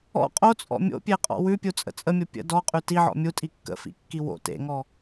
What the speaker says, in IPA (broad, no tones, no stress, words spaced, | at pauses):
ɔ̰ qʼot͡sʼɔ̰ mʲo̰pʲeqʼɔ̰ wʉpʲut͡sʼə̰ t͡sʼəmʲo pʲə̰ dɔqʼʉ tiʕɔ̰ mʲutʼi kːə̰fḭkːi wo̰ tḛŋɔ